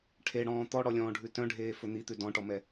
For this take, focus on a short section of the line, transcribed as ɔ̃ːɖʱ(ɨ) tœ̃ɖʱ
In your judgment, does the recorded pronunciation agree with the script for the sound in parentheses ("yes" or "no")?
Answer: no